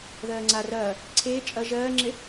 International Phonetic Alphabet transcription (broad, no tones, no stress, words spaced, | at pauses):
ðɜːŋ͡ǀa rɐː | ǀʰeː t͡ʃʼɐ ʒɜːŋ͡ǁe